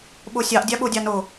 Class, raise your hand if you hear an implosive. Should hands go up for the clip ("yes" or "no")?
yes